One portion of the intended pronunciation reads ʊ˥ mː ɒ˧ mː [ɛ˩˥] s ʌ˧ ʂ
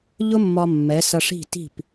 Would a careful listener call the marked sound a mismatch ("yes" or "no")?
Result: no